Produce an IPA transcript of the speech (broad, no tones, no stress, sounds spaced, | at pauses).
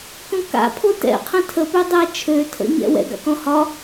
k õ k a̰ pʰ o t ɛ̰ qʰ ə̃ tʰ ə p ø dˤ ɛ t͡ʃʰ ø tʰ ə̰ ɲ ɛ̰ w ɛ̰ ɡ a̰ k ɔ̃ h ɒ